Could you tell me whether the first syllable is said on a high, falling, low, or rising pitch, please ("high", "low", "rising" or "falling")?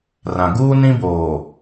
low